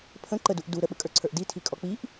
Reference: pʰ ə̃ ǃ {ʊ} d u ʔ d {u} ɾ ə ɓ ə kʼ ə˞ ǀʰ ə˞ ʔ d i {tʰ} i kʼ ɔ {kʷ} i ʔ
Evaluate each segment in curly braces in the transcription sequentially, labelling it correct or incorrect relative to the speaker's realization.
incorrect: ə, correct, correct, incorrect: k͡p

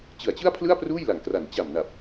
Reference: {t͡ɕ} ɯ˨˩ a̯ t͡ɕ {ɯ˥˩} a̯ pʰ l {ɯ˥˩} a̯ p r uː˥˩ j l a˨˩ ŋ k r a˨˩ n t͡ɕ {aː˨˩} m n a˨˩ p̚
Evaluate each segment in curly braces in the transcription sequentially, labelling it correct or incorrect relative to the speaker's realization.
correct, correct, correct, incorrect: a˨˩

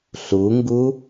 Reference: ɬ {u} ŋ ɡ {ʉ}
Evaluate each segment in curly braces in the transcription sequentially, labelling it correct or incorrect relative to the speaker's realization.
correct, incorrect: u

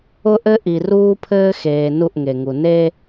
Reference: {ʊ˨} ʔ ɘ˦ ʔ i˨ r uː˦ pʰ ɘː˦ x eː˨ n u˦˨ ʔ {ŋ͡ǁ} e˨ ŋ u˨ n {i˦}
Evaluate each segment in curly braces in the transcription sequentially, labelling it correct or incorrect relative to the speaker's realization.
incorrect: ʊ˦, incorrect: ŋ, incorrect: e˦

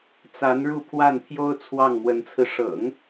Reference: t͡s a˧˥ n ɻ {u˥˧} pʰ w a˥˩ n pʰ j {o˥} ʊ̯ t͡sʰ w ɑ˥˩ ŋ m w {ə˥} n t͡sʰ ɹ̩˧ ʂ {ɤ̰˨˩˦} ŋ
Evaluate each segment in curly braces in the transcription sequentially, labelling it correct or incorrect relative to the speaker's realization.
correct, correct, incorrect: ə˧˥, correct

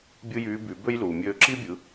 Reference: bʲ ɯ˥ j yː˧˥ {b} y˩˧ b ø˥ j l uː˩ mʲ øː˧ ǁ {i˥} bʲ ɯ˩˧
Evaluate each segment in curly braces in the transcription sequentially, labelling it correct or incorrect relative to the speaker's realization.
correct, correct

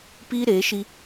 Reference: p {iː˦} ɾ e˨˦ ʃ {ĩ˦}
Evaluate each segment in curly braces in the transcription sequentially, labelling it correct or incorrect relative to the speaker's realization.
correct, incorrect: i˦

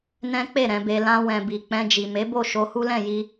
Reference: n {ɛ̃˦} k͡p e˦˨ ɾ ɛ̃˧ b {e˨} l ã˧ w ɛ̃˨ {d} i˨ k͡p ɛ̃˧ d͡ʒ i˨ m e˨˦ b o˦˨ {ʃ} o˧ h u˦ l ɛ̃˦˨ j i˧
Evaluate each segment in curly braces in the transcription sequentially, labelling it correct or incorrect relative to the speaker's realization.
correct, incorrect: e˧, incorrect: b, correct

